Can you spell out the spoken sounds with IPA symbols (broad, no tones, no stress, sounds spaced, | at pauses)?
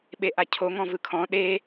ɓ e ʔ a cʰ o ŋ ɔ̃ v ɯ kʰ ɔ̃ ɗ e